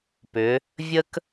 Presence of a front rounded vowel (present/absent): present